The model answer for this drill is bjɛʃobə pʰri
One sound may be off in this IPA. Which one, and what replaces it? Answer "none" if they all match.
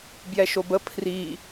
none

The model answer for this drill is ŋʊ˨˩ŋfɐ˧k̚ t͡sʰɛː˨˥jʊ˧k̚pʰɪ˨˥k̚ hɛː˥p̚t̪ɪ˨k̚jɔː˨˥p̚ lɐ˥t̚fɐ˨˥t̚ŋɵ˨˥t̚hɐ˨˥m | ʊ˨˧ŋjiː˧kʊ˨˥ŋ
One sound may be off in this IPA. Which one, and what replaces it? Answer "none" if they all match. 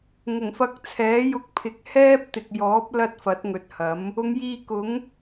none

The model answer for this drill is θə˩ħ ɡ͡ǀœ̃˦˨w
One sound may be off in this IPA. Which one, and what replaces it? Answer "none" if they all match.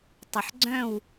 θ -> tˤ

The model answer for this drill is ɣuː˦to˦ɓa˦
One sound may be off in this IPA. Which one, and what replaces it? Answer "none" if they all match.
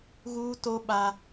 none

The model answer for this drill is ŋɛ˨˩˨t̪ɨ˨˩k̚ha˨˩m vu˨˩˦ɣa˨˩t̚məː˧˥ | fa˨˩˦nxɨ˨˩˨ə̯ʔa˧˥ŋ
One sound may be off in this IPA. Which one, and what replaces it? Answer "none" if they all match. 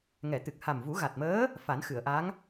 none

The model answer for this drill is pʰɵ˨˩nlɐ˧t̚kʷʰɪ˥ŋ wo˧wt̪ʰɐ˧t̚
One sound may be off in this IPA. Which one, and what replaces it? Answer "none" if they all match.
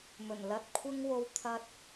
pʰ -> m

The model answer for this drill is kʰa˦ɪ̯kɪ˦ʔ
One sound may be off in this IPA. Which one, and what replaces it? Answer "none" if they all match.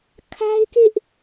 none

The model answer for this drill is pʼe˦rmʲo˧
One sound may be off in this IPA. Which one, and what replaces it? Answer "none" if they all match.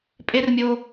none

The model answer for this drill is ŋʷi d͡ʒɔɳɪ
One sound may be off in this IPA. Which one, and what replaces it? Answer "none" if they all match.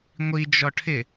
ɳ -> ʈʰ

